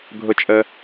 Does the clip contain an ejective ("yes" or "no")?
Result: yes